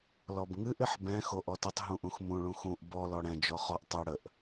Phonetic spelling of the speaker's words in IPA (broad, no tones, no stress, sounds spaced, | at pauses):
l ɔ b ŋ ɨ ʔ ɪ ħ b ɛ̃ x o ʔ ɔ t ə tˤ ɦ ũ ʔ ũ x m ũ ɭ ũ x ũ ʔ b ɔ l ɔ ɽ ɛ̃ d͡ʒ ɔ χ ɔ ʔ tˤ ɛ ɽ ə ʔ